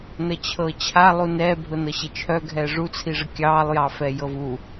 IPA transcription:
nət͡ɕʰɤt͡ɕʰa lˠunɛː bʱʊnɤɕet͡ʃʰœ ɡʱɛːʐu t͡sʰiʐəkʲɑːlˠ jɑfɛjɤvu

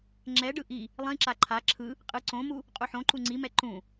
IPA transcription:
ŋ͡ǁɛɖɯ ʔi | lˠĩǁa ǃʰa ǁʰɯ | qʼɯ ǀõmu | qʼuħõǃu ŋ͡ǀimɛ ǃũ

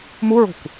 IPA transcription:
muɹo̤kʷ

